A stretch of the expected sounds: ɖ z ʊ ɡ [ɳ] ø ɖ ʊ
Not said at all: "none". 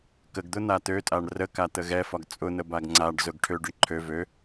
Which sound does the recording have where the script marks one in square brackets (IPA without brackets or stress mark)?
ʈʰ